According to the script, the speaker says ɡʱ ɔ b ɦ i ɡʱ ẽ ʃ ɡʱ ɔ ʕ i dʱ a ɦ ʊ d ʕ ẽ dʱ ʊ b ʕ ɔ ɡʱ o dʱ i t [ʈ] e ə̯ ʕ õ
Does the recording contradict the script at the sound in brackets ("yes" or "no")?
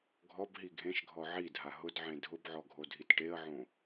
no